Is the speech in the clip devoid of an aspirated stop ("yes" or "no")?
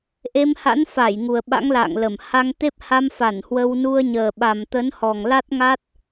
yes